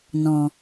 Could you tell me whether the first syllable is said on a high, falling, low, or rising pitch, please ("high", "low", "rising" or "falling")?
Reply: low